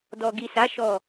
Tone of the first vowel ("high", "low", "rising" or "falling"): low